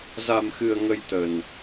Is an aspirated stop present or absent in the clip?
absent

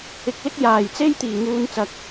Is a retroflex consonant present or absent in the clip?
absent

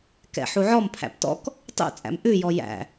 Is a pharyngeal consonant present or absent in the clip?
present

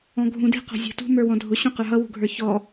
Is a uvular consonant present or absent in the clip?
present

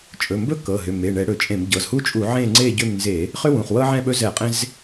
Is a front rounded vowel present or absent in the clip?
present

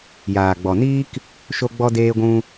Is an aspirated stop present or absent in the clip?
absent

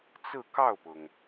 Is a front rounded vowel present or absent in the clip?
absent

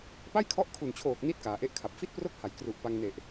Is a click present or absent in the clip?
absent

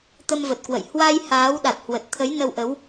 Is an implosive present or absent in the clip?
present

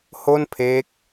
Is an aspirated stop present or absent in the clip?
present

